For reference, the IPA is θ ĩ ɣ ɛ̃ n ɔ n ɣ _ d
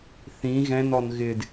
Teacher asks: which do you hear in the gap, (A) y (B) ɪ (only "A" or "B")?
B